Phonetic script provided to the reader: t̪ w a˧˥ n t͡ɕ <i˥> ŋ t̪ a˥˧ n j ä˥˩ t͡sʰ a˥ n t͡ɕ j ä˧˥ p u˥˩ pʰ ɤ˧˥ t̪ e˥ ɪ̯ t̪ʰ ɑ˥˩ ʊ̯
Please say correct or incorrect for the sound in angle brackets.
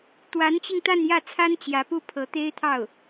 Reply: incorrect